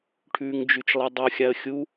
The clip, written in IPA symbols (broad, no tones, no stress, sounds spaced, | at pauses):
ʈʰ ʉː ŋ d͡ʒ ʉ t͡ʃ lˠ e dˤ u xʲ a ə̯ xʲ u